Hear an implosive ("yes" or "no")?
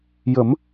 no